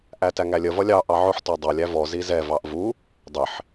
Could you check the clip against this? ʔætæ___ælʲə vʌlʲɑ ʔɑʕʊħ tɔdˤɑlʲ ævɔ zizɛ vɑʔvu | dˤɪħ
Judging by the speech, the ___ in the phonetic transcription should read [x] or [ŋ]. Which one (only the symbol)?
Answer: ŋ